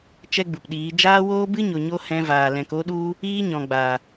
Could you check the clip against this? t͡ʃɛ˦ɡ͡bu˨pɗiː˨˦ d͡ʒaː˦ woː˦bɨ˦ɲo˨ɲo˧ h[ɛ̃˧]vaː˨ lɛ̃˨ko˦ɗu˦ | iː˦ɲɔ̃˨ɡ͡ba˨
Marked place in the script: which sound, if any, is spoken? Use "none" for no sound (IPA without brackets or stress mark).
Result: ɛ̃˧